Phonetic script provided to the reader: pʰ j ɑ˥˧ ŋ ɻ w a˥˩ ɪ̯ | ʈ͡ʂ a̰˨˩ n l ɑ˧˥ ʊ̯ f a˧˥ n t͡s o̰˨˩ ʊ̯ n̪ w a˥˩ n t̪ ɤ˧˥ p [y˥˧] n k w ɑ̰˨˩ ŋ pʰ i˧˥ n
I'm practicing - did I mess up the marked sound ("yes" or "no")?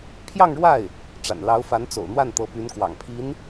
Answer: yes